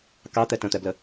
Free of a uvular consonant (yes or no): yes